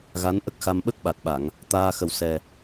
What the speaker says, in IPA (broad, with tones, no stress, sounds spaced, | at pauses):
ɣ a˧˥ n ʔ ə˦˥ k̚ x a˧ m ɓ ə˦˥ k̚ ɓ a˨˩ t̚ ɓ a˨˩˨ ŋ | t̪ aː˧ x ə˨˩ w s ɛ˨˩